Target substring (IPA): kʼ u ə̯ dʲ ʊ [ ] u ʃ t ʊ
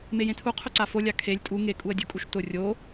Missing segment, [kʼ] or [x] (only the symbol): kʼ